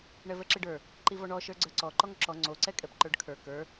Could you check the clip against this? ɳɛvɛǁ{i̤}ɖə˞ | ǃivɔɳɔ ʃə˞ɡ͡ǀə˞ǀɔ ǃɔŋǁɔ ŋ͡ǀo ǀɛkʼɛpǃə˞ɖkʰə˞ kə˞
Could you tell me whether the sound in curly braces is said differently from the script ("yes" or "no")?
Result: yes